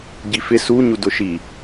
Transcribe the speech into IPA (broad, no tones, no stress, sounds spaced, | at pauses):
ɟ i f ɪ s u ɲ u d ʊ ʃ i